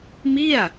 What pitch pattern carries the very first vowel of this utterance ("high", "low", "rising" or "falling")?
falling